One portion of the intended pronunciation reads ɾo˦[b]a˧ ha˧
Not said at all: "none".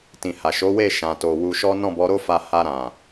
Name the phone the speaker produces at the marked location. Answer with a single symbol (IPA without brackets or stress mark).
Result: f